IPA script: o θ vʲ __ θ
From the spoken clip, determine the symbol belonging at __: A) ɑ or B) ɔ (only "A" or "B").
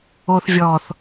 B